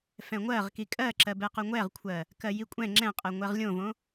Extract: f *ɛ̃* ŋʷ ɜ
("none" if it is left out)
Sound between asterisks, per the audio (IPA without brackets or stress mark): ɛ̃